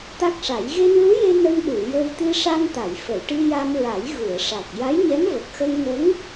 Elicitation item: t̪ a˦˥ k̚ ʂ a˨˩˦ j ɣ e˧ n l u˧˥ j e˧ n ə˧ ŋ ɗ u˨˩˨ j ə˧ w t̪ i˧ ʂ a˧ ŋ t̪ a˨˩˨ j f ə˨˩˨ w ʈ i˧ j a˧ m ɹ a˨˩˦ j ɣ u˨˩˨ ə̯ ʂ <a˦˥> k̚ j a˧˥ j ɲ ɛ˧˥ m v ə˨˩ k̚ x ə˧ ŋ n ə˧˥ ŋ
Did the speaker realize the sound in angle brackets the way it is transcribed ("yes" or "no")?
no